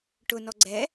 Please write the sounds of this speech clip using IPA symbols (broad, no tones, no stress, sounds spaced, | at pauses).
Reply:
ʈ ʊ n ɔ ɡ͡ǀ ɛ